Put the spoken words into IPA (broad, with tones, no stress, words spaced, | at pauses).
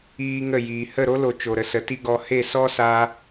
iː˧ ŋə˦˨jiː˨ hə˦˨ɾo˦lo˨ t͡ʃo˨ɾə˧sə˨˦ ti˦ɡɔ˧ he˦˨sɔ˦saː˧